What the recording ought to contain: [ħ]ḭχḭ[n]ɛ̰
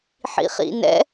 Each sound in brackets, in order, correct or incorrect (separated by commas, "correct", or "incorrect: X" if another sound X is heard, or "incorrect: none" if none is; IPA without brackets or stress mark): correct, correct